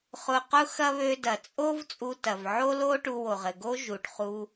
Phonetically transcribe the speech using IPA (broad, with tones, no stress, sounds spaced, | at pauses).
χ ʊ˧ q ʊ˥ x ɐ˥ β ø˧ d ɐ˩ t͡sʼ o˥ v t͡sʼ u˧ t ɐ˩ v ʕ o˥ l o˥ ʈ u˧ w o˩ ʁ ɘ˩ ɡ o˥ ʒ u˩ ʈ χ u˧